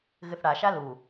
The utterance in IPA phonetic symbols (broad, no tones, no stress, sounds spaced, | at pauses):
ɣ ɨ θ ɽ a ʃ a l u